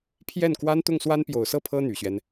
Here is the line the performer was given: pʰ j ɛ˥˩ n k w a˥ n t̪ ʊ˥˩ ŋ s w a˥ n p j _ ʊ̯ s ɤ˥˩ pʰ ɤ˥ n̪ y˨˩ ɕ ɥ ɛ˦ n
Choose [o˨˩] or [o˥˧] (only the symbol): o˨˩